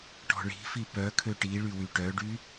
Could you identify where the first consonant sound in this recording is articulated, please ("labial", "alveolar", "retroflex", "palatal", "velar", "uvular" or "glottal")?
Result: retroflex